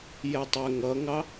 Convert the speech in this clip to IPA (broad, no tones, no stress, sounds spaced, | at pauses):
j ɛ tˤ ɛ ŋ ʌ ŋ ɑ